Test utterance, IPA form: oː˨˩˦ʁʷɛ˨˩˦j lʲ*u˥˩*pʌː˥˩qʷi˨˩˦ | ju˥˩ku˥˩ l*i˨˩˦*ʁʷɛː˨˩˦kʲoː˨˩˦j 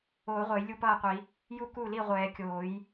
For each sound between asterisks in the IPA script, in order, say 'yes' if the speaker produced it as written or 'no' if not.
yes, no

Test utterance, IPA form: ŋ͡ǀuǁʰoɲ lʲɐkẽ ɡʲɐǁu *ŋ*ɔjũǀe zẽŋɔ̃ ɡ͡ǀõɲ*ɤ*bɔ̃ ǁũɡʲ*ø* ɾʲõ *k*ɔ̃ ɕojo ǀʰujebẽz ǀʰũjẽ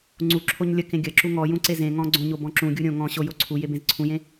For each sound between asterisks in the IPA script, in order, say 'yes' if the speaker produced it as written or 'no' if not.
yes, no, no, no

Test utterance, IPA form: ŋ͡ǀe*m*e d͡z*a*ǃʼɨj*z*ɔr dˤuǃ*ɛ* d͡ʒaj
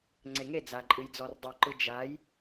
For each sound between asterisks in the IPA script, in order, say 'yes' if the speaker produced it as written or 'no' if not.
no, yes, no, no

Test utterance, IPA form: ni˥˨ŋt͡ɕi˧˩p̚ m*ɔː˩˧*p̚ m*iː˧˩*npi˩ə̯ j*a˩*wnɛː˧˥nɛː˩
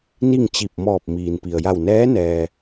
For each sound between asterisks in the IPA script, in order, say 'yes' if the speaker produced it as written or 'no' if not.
no, no, no

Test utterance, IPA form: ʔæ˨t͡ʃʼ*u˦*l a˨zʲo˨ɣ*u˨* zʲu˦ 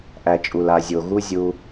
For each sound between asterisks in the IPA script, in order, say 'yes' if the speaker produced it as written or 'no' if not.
no, no

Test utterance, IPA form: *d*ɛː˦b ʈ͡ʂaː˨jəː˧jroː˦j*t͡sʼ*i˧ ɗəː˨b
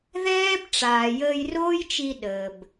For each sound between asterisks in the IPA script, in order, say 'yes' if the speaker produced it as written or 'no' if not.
no, no

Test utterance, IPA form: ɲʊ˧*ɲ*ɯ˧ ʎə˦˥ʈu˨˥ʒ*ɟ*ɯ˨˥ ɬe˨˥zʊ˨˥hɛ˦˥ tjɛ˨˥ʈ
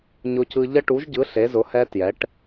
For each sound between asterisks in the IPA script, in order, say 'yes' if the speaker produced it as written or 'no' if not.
no, yes

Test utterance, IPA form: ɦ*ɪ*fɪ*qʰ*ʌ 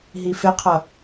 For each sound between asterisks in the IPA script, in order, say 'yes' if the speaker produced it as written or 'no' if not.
no, yes

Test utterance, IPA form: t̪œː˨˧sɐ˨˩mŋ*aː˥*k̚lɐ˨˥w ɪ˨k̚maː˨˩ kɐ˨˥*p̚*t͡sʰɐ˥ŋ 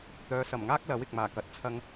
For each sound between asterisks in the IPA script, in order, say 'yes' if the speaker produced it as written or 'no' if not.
yes, no

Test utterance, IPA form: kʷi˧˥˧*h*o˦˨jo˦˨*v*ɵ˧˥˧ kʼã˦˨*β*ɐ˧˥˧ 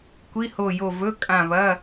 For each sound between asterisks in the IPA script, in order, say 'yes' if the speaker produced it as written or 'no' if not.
yes, yes, yes

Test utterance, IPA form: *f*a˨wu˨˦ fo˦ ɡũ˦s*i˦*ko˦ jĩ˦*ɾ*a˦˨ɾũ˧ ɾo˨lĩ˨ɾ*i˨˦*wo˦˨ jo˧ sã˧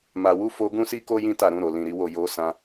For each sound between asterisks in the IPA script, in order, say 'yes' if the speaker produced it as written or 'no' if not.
no, yes, no, yes

